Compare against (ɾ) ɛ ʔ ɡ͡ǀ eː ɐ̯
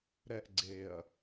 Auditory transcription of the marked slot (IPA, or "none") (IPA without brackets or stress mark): ɾ